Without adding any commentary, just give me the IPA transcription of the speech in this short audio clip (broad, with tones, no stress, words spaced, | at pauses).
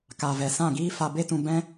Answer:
ka˨vɛ˨sã˦˨ɡiː˦ fa˧be˦tũ˧ bɛ̃˦